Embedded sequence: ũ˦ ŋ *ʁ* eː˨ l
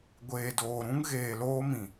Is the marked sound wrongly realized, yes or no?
yes